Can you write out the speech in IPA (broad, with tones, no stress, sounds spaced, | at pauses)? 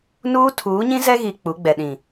n uː˦ tʰ uː˨˦ ɲ ĩ˦ z ɛ˦ ɣ i˨ k͡p u˨˦ ɡ͡b ɛ˨ ɗ ĩ˨